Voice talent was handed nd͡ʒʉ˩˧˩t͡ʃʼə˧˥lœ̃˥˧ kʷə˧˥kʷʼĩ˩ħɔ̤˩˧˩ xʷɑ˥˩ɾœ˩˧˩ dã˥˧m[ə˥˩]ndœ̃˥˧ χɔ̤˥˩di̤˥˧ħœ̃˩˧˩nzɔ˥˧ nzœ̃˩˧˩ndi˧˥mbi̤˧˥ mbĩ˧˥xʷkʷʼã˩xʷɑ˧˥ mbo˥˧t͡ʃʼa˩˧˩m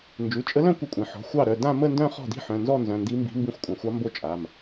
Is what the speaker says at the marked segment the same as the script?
no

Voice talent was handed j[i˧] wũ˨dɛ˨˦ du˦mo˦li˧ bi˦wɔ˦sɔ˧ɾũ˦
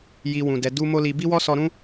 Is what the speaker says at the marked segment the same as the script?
yes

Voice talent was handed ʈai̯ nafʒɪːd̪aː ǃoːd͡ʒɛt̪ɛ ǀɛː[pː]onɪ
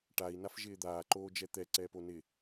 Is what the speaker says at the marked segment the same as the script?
no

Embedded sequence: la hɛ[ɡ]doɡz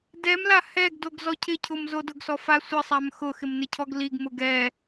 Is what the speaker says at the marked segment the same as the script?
yes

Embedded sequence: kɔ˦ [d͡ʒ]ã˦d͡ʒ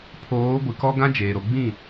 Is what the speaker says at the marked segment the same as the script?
no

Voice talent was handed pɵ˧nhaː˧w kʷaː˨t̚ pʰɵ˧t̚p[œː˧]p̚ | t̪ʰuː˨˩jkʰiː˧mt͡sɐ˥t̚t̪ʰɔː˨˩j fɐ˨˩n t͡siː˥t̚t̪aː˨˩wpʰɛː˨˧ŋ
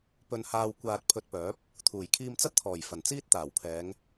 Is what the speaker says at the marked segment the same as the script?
no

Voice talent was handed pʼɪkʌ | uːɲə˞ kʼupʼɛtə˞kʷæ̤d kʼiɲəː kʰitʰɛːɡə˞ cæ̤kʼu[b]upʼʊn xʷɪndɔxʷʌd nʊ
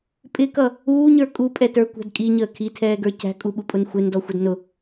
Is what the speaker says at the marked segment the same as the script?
no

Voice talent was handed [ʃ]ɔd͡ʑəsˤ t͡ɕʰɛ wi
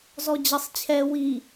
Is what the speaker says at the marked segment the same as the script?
no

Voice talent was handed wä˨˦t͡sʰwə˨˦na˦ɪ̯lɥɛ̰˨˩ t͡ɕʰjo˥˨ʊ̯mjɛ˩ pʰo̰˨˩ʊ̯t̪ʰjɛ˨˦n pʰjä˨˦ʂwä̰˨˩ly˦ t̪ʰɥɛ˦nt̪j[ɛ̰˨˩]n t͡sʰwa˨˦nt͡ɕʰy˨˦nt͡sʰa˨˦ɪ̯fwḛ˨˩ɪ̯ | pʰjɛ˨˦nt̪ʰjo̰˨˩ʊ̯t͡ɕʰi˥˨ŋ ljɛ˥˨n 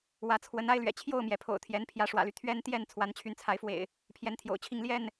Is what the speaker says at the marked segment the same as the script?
no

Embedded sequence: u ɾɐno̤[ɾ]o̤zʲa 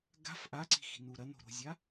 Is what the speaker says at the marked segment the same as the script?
yes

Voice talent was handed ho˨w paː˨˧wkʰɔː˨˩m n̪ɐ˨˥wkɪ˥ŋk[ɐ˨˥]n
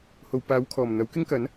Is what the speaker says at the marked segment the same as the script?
yes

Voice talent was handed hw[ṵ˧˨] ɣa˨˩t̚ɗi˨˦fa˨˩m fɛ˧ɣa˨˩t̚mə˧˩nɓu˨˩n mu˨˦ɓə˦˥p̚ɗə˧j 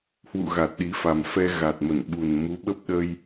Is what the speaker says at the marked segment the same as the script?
yes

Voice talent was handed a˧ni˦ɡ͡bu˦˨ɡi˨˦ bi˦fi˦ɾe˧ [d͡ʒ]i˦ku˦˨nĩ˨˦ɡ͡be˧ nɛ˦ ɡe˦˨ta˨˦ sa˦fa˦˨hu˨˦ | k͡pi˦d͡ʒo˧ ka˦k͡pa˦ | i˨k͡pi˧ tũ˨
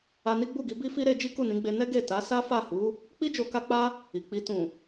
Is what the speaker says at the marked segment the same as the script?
yes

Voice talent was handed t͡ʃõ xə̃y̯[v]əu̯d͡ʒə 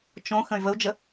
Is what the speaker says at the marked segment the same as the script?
yes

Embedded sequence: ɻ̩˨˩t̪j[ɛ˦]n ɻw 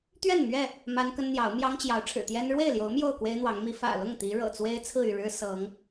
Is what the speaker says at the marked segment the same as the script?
yes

